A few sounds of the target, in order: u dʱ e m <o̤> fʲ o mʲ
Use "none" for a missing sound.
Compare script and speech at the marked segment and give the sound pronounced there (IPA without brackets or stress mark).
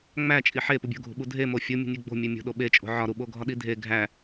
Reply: o